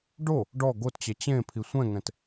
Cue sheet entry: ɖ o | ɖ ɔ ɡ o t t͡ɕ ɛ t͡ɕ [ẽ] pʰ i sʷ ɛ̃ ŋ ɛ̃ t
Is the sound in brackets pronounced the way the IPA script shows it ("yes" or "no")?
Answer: yes